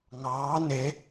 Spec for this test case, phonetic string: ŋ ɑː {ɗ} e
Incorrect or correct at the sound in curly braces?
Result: incorrect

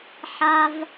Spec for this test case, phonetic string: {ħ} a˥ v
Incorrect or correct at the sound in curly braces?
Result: correct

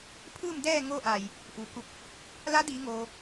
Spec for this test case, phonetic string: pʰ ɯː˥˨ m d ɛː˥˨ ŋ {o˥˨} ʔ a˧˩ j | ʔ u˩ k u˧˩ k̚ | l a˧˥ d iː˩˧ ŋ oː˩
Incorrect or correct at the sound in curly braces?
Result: correct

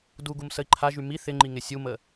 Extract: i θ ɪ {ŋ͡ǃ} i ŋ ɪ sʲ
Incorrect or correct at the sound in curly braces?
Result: correct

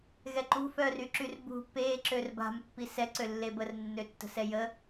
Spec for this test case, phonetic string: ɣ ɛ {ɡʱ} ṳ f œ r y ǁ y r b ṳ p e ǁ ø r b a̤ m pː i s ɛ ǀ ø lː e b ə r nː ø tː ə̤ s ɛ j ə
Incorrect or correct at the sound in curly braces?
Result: incorrect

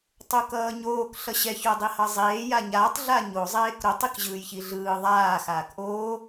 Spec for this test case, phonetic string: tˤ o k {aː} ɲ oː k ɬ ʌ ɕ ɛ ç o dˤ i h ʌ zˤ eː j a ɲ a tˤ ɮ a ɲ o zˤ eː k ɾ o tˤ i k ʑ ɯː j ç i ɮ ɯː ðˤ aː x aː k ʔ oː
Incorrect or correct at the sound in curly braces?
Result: incorrect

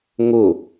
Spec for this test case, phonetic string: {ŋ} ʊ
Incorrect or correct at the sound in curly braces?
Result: correct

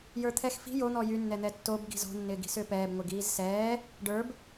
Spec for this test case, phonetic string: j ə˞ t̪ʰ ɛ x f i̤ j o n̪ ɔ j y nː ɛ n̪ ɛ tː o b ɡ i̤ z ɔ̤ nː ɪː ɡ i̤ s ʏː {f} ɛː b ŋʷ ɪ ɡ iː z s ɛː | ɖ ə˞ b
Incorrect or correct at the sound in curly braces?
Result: incorrect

